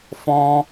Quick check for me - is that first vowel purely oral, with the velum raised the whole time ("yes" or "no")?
no